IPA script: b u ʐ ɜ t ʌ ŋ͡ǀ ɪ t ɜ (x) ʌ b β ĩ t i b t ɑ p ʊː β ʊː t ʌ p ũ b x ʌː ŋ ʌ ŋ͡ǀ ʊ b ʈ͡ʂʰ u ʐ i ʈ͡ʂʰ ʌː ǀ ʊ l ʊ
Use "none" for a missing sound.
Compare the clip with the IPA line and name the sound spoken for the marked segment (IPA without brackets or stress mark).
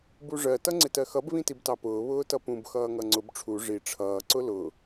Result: x